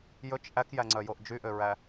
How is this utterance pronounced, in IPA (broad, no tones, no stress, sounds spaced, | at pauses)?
j ɵ t͡ʃ ʔ æ k j æ ŋ͡ǀ œ j o ʔ d͡ʒ y ʔ ø ɹ æ